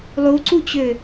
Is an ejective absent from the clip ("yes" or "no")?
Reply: yes